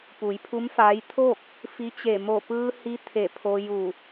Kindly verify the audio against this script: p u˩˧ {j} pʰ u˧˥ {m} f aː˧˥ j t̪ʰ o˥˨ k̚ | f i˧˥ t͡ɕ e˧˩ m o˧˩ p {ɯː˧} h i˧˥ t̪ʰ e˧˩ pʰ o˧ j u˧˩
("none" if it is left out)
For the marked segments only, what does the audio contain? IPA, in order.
j, m, ɯː˧

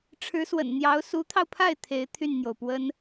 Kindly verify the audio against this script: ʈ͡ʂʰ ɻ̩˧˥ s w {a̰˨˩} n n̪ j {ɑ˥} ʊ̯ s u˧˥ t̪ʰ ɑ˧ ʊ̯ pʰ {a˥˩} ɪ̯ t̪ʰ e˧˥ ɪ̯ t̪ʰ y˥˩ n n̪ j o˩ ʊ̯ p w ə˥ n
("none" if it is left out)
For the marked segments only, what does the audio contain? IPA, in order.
ə̰˨˩, ɑ˧˥, a˥˩

